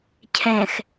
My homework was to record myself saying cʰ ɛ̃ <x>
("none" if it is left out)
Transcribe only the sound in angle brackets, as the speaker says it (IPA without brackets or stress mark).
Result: x